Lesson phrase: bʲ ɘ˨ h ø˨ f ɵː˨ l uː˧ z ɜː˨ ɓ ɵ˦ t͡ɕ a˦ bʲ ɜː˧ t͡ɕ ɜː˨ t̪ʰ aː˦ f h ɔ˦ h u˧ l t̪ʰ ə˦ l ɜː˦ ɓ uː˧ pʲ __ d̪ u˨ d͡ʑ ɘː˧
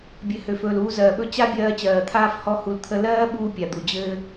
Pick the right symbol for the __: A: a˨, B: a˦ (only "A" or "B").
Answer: A